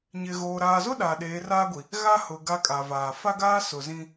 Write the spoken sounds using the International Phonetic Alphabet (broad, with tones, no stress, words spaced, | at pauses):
ɲɪ˨ɣoː˨ ɾaː˨zʊ˦ ɗaː˨ɗeː˨˦raː˦ɡʷi˨ | ɣa˦hʊ˨ ɡa˦kʼa˨vaː˨ fa˦ɡaː˦ sʊ˨zĩ˦